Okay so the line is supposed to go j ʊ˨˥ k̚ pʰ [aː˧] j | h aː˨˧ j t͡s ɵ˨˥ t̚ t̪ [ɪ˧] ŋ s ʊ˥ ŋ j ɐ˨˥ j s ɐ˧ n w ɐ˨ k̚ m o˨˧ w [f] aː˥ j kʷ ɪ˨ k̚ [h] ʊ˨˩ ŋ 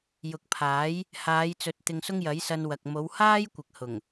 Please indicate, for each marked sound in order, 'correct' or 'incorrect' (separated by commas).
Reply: incorrect, correct, incorrect, correct